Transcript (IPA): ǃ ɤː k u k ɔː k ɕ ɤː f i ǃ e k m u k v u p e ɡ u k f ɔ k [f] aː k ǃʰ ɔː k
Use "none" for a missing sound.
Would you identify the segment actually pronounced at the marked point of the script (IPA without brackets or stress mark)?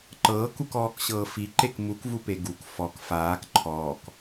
f